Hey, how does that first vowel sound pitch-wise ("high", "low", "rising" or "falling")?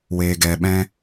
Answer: low